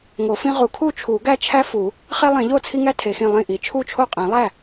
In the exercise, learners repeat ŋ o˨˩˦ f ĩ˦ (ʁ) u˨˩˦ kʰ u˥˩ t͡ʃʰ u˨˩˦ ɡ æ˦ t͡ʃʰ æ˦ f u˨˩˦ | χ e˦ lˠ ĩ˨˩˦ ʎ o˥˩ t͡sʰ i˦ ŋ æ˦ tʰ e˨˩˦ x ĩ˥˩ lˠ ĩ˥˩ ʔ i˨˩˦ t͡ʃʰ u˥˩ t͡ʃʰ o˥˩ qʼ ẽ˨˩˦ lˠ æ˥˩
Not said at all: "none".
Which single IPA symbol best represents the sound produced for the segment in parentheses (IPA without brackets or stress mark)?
ʁ